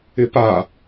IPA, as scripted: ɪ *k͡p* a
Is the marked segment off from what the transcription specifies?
yes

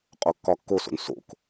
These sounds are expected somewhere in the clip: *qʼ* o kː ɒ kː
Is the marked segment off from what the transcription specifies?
no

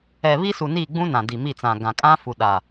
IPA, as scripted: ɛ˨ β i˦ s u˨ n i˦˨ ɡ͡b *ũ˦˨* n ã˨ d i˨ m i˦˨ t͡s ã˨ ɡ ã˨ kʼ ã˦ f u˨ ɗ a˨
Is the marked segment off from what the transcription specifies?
yes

